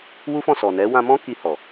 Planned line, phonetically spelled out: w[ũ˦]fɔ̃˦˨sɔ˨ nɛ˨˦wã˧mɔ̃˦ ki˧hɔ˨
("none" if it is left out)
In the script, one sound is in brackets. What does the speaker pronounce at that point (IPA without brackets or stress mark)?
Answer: u˦